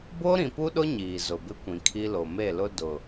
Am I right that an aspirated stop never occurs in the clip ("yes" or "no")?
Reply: no